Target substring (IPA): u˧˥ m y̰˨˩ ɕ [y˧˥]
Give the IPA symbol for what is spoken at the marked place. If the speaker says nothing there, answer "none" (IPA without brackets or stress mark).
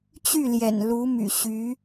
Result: y˧˥